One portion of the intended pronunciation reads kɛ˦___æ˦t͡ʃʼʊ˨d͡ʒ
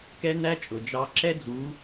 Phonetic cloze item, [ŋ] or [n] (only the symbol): n